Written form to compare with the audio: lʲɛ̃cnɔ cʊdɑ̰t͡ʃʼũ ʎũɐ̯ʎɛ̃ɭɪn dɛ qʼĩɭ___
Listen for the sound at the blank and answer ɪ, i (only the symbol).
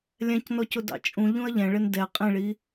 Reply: i